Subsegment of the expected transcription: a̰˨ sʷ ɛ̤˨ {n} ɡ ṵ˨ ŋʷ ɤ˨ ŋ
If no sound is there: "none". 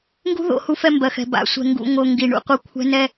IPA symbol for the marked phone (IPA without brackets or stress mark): ŋ